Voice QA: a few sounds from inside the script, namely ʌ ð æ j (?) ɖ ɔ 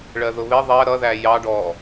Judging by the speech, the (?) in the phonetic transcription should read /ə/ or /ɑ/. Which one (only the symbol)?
ɑ